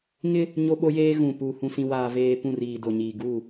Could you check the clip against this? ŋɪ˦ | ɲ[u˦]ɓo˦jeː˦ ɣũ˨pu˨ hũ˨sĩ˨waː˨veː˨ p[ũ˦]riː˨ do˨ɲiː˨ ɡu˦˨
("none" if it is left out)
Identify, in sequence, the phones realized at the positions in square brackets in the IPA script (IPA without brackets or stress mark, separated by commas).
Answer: o˦, ũ˦˨